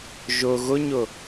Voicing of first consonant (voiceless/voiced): voiced